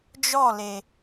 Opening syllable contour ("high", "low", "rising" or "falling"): falling